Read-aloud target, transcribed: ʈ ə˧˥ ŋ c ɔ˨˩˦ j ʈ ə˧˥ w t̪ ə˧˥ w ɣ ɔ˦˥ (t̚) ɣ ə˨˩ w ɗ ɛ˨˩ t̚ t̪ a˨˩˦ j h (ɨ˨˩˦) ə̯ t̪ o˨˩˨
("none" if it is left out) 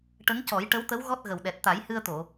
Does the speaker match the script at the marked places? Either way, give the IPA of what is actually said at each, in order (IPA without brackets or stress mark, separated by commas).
t̚, ɨ˧